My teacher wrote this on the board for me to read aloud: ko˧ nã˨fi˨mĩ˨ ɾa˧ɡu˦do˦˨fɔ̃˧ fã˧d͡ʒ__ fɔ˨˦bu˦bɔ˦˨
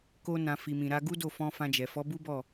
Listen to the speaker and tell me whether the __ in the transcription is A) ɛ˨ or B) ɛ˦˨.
A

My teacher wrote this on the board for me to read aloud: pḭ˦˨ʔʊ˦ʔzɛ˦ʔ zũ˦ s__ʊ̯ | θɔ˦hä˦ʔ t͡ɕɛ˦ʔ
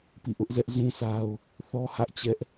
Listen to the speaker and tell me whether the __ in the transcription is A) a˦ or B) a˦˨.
A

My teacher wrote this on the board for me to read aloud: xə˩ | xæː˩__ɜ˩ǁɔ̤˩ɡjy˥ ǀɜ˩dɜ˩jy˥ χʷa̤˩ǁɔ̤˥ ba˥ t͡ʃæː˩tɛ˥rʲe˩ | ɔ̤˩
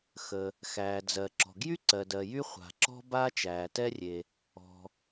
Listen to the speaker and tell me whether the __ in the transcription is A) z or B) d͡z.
B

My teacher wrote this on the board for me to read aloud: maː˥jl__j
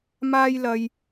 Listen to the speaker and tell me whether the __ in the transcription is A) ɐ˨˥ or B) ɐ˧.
B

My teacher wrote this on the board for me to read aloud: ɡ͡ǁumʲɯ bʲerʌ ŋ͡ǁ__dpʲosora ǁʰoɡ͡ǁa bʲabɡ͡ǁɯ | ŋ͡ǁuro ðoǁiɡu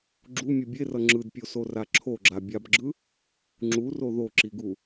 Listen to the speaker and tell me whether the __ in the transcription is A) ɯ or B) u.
A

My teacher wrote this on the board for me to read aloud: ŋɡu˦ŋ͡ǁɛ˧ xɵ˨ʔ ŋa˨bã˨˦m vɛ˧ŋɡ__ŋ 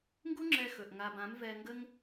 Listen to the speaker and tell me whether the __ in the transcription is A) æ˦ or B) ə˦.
B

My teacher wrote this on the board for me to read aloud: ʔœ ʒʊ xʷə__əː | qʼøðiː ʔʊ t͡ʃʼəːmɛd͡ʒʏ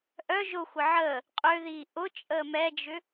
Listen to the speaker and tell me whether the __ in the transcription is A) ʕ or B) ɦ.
A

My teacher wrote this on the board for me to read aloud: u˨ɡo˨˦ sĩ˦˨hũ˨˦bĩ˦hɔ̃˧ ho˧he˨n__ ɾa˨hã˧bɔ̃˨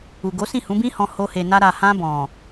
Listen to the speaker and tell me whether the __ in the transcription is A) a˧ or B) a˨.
A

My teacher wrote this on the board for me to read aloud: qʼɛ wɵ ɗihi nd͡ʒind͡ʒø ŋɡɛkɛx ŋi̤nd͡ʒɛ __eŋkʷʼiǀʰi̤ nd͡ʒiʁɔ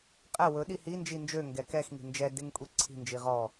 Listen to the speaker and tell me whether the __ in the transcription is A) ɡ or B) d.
B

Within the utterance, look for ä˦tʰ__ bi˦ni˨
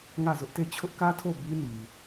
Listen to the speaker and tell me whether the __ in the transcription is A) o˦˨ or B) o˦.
A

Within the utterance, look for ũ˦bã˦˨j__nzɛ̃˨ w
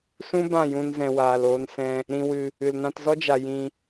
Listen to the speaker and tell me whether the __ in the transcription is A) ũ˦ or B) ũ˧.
B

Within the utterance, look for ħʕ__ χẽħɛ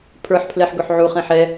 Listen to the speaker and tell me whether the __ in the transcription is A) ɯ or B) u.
B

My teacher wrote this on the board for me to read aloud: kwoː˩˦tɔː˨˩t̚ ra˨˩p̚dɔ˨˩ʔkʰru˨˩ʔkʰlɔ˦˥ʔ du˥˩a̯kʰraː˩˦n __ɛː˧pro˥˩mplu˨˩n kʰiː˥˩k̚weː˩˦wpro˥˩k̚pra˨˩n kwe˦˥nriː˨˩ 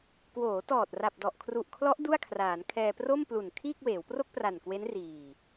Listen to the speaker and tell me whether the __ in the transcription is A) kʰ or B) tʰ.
A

